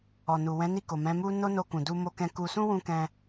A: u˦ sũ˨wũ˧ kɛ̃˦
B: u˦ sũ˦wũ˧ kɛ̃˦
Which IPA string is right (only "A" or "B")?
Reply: B